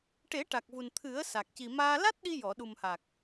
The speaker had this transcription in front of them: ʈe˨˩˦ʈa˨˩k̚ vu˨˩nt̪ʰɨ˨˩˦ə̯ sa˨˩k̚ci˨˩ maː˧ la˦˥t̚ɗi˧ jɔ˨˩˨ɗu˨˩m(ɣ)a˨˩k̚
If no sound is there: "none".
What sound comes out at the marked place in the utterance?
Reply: h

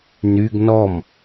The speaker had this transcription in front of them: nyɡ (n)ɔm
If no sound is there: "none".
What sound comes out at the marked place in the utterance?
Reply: n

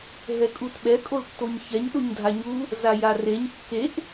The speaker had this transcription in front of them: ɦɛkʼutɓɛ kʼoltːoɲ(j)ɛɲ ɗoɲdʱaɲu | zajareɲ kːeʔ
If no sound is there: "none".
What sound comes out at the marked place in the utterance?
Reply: ç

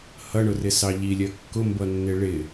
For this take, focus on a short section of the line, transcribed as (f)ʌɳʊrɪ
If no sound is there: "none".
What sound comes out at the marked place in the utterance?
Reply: h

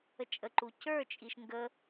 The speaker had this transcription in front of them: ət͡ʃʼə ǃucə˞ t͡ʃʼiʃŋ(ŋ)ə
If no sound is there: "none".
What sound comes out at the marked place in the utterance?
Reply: ɡ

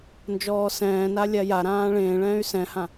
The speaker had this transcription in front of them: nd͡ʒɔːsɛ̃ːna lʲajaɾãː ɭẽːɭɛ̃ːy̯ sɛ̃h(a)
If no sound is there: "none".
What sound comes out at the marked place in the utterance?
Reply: ã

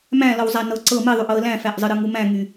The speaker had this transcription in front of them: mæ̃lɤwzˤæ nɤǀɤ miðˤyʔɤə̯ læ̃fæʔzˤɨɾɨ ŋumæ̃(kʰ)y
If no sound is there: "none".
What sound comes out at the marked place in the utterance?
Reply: ŋ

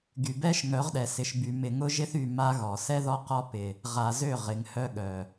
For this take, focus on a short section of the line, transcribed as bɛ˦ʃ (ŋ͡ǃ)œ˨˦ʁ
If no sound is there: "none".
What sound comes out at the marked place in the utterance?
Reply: ŋ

